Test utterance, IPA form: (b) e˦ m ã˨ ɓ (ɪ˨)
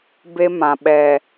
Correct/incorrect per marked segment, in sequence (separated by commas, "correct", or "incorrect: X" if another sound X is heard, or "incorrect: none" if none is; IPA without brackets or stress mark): correct, incorrect: ɛ˨